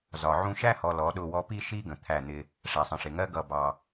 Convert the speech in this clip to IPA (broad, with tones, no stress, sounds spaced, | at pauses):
z ɒ˨ ʕ ũ˦ ʃ æ˦ h ɔ˨ l ɔ˨˦ ɗ ʊ˦˨ w ɔ˦ p i˦ ʃ i˦ ɡ ə̃˨ t̪ʰ æ˦˨ n̪ ɪ˦ | ʂ æ˨ sˤ ə̃˨ ʂ ɪ˨ ŋ ɜ˦ ɡ ʌ˦˨ b ɑ˦